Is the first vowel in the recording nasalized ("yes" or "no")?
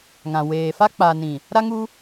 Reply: yes